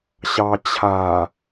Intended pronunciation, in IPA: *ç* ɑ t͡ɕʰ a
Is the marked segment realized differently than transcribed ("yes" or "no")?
yes